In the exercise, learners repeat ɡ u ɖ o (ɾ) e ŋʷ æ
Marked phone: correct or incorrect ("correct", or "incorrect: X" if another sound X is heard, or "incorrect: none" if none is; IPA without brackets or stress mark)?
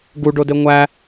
incorrect: d